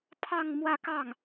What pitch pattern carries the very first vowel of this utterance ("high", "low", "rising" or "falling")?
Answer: falling